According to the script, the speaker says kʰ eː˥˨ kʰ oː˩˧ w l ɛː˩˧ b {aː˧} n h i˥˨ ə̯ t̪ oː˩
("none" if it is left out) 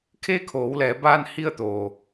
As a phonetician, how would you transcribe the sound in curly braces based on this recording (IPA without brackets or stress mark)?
aː˧